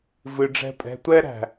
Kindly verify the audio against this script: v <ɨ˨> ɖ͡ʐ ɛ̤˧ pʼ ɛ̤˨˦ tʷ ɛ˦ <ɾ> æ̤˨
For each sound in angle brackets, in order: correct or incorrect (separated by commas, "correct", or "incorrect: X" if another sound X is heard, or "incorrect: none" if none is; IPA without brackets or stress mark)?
correct, correct